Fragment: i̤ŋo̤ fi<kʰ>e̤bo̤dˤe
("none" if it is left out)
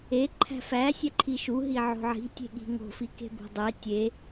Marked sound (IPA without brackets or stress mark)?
k